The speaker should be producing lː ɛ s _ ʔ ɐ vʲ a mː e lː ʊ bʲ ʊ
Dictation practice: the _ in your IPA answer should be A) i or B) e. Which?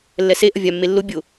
B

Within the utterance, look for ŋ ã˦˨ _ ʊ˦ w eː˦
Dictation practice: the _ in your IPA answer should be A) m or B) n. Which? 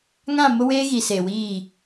A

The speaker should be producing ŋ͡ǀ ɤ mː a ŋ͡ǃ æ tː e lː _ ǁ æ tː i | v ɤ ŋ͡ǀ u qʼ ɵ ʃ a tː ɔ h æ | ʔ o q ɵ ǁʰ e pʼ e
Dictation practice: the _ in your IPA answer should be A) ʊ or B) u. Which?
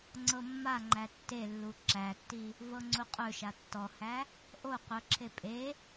B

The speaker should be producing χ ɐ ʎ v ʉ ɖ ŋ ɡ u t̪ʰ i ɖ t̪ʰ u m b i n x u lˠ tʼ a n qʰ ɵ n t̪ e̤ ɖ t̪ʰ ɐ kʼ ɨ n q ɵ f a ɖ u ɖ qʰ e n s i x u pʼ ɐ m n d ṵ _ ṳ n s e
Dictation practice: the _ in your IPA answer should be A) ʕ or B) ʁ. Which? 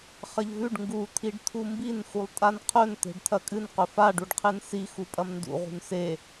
B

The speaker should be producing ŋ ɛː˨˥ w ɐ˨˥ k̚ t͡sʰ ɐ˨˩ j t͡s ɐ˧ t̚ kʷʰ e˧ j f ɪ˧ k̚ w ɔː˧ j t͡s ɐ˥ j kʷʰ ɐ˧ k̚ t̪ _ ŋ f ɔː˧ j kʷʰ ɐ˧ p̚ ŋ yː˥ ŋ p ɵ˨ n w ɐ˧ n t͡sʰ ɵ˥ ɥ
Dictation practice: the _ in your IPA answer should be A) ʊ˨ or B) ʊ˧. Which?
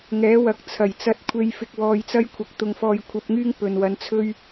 B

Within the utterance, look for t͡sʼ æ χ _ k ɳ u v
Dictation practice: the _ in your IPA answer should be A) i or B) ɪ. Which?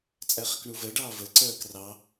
B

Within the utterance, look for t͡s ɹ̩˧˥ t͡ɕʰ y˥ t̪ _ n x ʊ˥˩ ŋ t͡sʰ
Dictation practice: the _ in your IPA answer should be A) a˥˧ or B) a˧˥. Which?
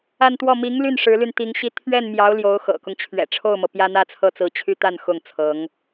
A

